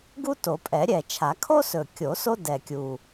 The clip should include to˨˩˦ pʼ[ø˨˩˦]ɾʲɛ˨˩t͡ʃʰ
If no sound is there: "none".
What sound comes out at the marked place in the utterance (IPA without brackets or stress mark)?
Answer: ɛ˨˩˦